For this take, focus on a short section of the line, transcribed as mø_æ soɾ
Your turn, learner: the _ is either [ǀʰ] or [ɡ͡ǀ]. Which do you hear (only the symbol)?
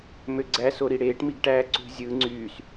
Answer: ɡ͡ǀ